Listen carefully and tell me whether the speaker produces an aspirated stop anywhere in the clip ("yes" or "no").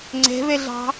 no